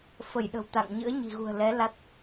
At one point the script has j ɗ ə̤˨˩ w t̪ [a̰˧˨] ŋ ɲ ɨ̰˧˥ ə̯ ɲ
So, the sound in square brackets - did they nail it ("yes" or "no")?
yes